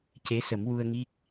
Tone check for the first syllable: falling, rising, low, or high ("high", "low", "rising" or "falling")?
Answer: rising